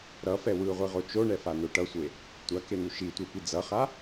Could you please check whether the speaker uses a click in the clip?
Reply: no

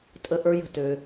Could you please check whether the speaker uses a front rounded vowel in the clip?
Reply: yes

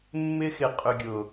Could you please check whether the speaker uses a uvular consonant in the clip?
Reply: yes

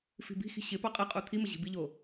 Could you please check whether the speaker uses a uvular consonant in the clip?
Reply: yes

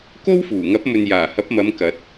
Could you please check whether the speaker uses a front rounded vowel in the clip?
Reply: no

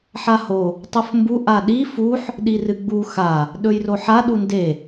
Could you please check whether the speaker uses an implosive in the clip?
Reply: yes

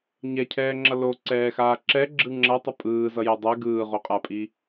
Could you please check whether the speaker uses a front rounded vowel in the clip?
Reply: no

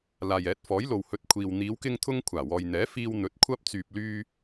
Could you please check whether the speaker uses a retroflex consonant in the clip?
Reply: no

